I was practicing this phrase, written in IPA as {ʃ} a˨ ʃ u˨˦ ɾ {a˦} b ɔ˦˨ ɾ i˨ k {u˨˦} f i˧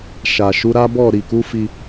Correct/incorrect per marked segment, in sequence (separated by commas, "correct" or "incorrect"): correct, correct, correct